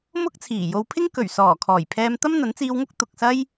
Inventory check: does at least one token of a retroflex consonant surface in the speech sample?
no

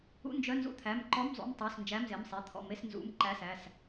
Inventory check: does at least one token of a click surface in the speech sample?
yes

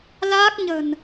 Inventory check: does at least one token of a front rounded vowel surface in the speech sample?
no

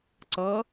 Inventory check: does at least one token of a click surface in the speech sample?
yes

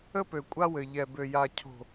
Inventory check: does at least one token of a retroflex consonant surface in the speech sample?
no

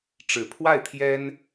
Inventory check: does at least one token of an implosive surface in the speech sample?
no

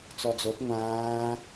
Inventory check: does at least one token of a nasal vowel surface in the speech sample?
yes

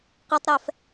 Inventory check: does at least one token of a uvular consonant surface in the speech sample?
yes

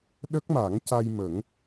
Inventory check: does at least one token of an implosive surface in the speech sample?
yes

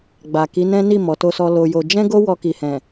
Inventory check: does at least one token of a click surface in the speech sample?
no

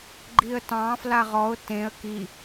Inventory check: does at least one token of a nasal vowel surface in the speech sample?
yes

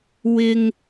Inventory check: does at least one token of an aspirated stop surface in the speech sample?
no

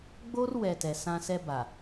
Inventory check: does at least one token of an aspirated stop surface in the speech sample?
no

